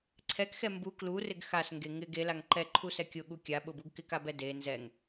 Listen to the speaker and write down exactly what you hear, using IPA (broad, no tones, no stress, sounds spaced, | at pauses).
ǀʰ ɛ k x ɛ m b u k l u r ɪ ɡ x a s ŋ ɡ e ŋ ɪ ɡ e l a ŋ ǃ ɛ ǃʰ u s ɛ kʲ ʊ ɠ u kʲ a ɓ ʊ b u ɡ k ɪ k a b ɛ d e n z ɛ ŋ